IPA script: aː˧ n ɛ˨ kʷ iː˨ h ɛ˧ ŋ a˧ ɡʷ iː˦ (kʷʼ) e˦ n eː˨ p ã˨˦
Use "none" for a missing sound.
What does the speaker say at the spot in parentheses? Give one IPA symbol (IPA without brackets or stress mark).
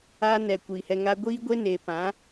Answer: ɡʷ